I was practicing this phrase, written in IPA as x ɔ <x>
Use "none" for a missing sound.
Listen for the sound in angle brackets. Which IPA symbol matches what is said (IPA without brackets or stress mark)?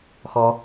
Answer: none